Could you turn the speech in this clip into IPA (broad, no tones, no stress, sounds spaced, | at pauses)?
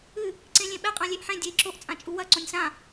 ɨ | ǀ ẽ lʲ ẽ ɓ ɛ qʼ ã lʲ e ʔ ħ ẽ dʲ e i̯ ǁ o ʔ t͡sʼ ã t͡ʃʼ u w ɐ ǀ õ nʲ s ã